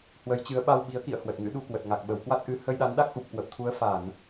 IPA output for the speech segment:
hwə˨˦jt͡ɕɨ˨˦ə̯ ɓa˧wɓi˨˦ə̯kḭ˧˨ə̯ hwə˨˩t̚ŋɨ̰˧˥ɗu˧kwə˨˩t̚ ŋa˨˩k̚ ɓə˧˩wkwa˦˥t̚ʔɨ˨˦ hə˧jɗa˨˦nɗa˦˥k̚ ʔu˨˩p̚kwə˨˩p̚t̪ʰu˨˦ə̯ fa˧˩˨n

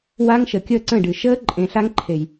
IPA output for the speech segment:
waː˦ŋʃəː˨ kʲəː˦˨ǀə̃ː˦˨ɖɨː˨ ʃəː˦ ǃʼẽ˨ɬa˦ŋǃʰe˨j

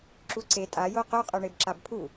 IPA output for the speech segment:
ǁuǀe tʼa joqo qʼœɳebǁabpʰu

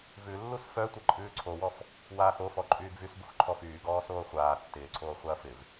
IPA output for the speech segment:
vʉ lːusfœ tʷɛǃʼʉːǀʰowɔf | waːxofɔ ǃʼyːɡvysbux ǃʰɔfyːɡɔː soːχʷaː tːɪːǀʰoː χʷaɐ̯fɪv

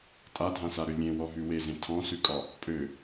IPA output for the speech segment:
tʼadʱãsaɾø lʲẽwɔɦʉ wezẽ tʰɔ̃sʉkʼɒ | pʼø

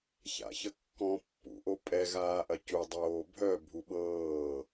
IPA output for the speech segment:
ça̰çəkːɔ̃ pːṵʔo pʼɛ ɣaːʔɐcudˤoː bʱœ bʱuɓɤː

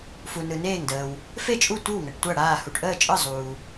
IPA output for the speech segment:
fu˨ nɯ˨ neː˥˩ŋdəː˨w | fe˥˩t͡ʃʼu˥˩ tʷɯ˥˩wŋə˨ʈ tʷa˥˩ɽaː˥˩ hu˨ʈʔəː˥˩t͡ʃʼɯ˥˩ zˤuː˨

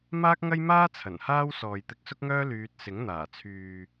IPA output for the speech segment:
maː˥k̚ŋɐ˥jmaː˥ t͡sʰɐ˨˩nhaː˥w sɔː˨jt̪ɪ˧k̚sʊ˥k̚ŋœː˥ lyː˧t̚ sɪ˨˥ŋn̪aː˨˩t͡sʰyː˨

